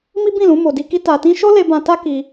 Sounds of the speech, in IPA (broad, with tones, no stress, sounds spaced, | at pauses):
m i˦ b ĩ˦˨ l ũ˨˦ m o˧ d i˦ k i˦ t a˧ t ĩ˦ ʃ o˦ l e˧ b ã˧ t a˦ k i˧